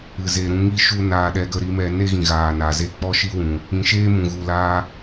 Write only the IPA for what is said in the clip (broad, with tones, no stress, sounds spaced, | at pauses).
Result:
ɨ˨ z e˨ ɾ ũ˧ ŋ i˦ ʃ u˦ n aː˧ ɗ ɛ˧ ɡ ə˧ ɾ i˨˦ m ɛ˧ n e˦ ɣ ĩ˨ ɣ aː˨ n aː˨ z e˧ k͡p ɔ˦ ʃ i˦ w ũ˨ | ĩ˨ ʃ eː˦ m ũ˨ ɣ u˨ l aː˧